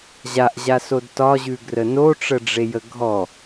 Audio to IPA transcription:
ʑaʔʑasod tɒʑʉɡrə noʈ͡ʂəɖ͡ʐejə ɡʱɔ

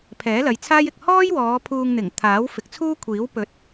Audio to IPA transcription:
pʰɛː˨˥lɐ˨˧jt͡sʰaː˥jɪ˨k̚ hɔː˥jwɔː˨˧ pʰuː˧ŋn̪ɪ˨˩ŋ t̪ʰaː˨˥wfɪ˨˥k̚t͡sʰuː˥kʷʰiː˨˥w pɵ˨˥t̚

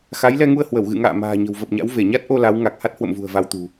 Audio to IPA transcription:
xa˨˦jlɛ˧ŋu˧ə̯hwə˧˩w ɣɨ̰˧˨ŋa̰ː˧˨ ma̤ː˨˩ɲə̤˨˩wvə˨˩p̚ɲa̰˧˥w ve˧˩ɲa˦˥t̚ʔo˧ la˨˦w ŋa˨˩k̚ha˦˥t̚hwə̰˧˨mvṳ˨˩ə̯ va˧wt̪ṳ˨˩

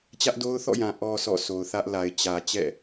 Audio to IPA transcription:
t͡ɕä˦ʔdo˦ʊ̯θɔ̰˦˨jã˨ ʔɔ˨ sɔ̰˦˨so˨ʊ̯θä˦ʔla˨ɪ̯ t͡ɕä˨ t͡ɕɛ̰˦˨

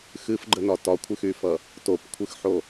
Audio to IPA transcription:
xɨfɡ͡ǃənɒ tɒkʷʰɨxyfʌ | topkʷʰɨxħo

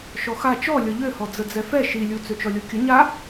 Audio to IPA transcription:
ʃɔxa t͡ʃɔ lʲɔʎøhɔ d͡zəd͡zɛfɛ ʃilʲu t͡søt͡ʃɔlʲokʲə ɲa

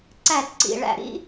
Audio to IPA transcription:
ǀæ˦˨tǀḭ˨˩ ɭæ̰˨˩ɾḭ˦˥

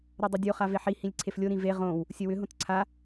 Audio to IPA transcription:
ɾodˤodʲo χaveħi hĩlʲǀʰeflʲo ɾĩve ʁõw | sʲəwʏ ɦõtǀʰa

